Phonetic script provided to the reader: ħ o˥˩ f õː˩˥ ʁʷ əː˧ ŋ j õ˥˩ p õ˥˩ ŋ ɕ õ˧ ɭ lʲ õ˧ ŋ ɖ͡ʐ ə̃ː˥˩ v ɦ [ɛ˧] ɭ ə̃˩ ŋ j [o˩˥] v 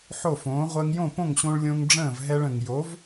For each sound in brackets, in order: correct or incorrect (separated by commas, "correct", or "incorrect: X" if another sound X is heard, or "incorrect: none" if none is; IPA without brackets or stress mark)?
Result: correct, correct